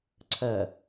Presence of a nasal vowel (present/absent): absent